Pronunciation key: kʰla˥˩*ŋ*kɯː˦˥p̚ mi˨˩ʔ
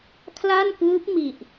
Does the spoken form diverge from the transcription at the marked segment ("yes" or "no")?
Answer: yes